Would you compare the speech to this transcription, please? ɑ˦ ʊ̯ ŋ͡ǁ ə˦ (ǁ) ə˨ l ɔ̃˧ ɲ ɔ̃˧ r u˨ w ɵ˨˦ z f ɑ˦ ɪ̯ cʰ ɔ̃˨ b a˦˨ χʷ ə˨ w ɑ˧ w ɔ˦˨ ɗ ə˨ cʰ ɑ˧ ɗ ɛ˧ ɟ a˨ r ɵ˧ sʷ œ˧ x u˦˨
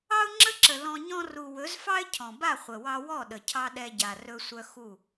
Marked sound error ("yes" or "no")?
no